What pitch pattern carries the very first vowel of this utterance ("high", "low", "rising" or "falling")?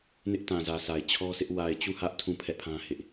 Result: high